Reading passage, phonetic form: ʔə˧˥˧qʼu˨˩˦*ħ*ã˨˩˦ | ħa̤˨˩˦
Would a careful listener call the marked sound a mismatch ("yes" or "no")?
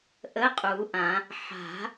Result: yes